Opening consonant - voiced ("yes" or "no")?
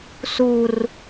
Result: no